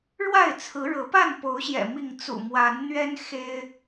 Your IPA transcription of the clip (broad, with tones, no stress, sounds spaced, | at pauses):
ɻ w a˥˨ ɪ̯ t͡sʰ ɹ̩˨˦ ɻ ɤ˨˦ p a˥˨ n p o˨˦ ʊ̯ ɕ j ɛ̰˨˩ m i˥˨ ŋ t͡s ṵ˨˩ m w a˨˦ n n̪ ɥ ɛ˦ n x e˦ ɪ̯